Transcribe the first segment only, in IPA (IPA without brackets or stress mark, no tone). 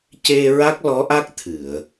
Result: c